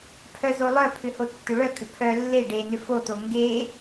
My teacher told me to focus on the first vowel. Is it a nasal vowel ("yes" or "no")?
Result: no